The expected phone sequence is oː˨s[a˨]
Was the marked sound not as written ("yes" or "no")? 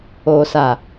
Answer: no